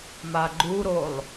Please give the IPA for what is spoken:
m a ɡ͡ǃ u ɾ o lˠ

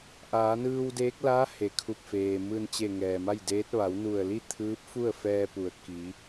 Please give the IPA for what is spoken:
ʔ aː˩˧ n ɯː˧ w d eː˧˥ k̚ l a˧˥ h e˩ kʰ u˧˩ p̚ f eː˩ m ɯː˧˩ n t͡ɕ e˧˩ ŋ ɛː˩ m a˥˨ j d eː˧˥ t̚ ʋ a˩˧ w n u˧˩ ə̯ l i˥˨ t̪ʰ ɯː˧˥ p̚ f u˥˨ ə̯ f ɛː˧ p u˩˧ ə̯ k i˩˧

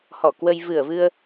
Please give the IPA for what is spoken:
h ɔ˧˩ k w ə˧ j v ɨ˧˩ ə̯ v ɨ˧ ə̯

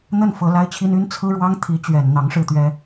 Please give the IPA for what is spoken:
n̪ ə˥˩ n f ɤ˧˥ l a˥ ɪ̯ t͡ɕʰ i˥ n y˥ n t͡sʰ ɹ̩˥ ɻ w ɑ˥ ŋ t̪ʰ i˧˥ t͡ɕ ɥ ɛ˨˩ n n̪ ɑ˧˥ ŋ ʂ ɻ̩˥˩ t̪ ɥ ɛ˥

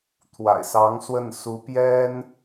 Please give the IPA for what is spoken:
t̪ʰ w a̰˨˩ ɪ̯ s ɑ˧˥ ŋ s w ə˥˩ n s u˧˥ p j ɛ˥ n

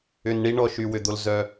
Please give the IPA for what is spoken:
ʏ˨ n ɳ i˥ ɳ ɔ˨ ʃ y˩ w ʏ˩ d̪ o˩ l z œ˩

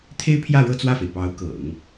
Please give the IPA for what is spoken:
t̪ʰ e˥ ɪ̯ pʰ j ä˥˧ ɻ ɤ˥˧ t͡s w ä˥˩ f e˩ ɪ̯ p ɑ˧˥ ʊ̯ k ɤ̰˨˩˦ ŋ

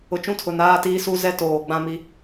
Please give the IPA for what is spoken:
ʊ˨ t͡ʃ ũ˦ tʰ ʊ˨ n aː˦ t iː˦ s u˦ z ɛ˦ t oː˨ ɡ͡b ã˦ m i˦

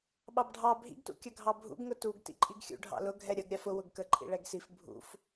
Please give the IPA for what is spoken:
ɓ ɑ b ɖʱ ɑ bʱ ḭ ɡ t ṵ kʲ ʌ ɡʱ ɑ bʱ ṵ ɡ ŋ ʊ t u ɡ t ḭ ǃʼ i ɡ xʲ ṵ ɖʱ ɑ̰ l ʊ ɡʱ ɛ ɾʲ ʌ ɡ ɾʲ ɑ f ʊ w ʊ ɡ k ə ǃʼ ḭ ɭ ɛ ɡ s i f bʱ ṵ f

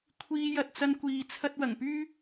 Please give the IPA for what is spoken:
kʷʰ iː˧ j ɐ˧ t̚ t͡s ɐ˥ n kʷ iː˧ t͡sʰ ɐ˥ t̚ w ɐ˨˩ ŋ p yː˥

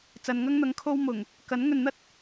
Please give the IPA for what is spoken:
t͡s ɐ˨ n ŋ ɐ˥ ŋ n̪ ɐ˨˥ ŋ kʰ o˥ w m ʊ˨˩ ŋ | k ɐ˨˥ n ŋ ɵ˨ n n̪ ɐ˥ t̚

